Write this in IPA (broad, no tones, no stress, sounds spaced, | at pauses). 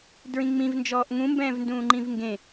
d ɹ ĩ ŋ͡m ĩ v n d͡ʒ ɔː ʔ ŋ ũ m b ɛ̃ː v n d ũː ŋ͡ǃ ĩ v ŋ ɡ ẽ